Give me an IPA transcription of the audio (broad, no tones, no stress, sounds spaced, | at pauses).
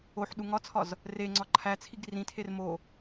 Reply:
o ħ ɗ u ŋ ɒ t͡sʰ ɒ z | r e ŋ͡ǀ ɒ ǃʰ æ t͡sʰ i ɡ r ĩ tʰ e r m o